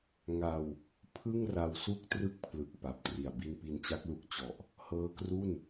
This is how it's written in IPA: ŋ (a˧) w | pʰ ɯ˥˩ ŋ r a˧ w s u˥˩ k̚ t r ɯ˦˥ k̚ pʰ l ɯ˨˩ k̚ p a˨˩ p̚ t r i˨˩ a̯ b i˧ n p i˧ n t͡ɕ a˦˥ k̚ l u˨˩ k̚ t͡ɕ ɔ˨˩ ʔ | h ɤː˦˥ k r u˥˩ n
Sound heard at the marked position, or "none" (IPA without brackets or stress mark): a˧